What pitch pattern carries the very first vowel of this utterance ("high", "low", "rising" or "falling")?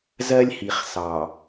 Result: high